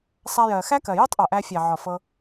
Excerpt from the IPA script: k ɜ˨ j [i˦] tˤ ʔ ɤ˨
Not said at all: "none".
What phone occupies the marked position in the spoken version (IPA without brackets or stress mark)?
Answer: i˦